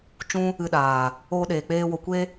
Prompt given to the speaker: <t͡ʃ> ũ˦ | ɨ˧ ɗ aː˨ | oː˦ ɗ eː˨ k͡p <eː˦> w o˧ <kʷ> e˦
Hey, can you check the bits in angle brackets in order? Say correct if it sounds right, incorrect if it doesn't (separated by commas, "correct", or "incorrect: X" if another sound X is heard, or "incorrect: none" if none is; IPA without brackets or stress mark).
correct, correct, correct